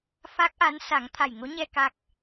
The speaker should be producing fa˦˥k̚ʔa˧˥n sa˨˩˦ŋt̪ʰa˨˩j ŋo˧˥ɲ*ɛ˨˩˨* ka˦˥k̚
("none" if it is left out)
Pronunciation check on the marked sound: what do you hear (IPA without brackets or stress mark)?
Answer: ɛ˧